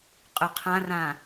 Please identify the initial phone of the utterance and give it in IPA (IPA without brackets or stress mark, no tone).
qʼ